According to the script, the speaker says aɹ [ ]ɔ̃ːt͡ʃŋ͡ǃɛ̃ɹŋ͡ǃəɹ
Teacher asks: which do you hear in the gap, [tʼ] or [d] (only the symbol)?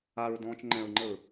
d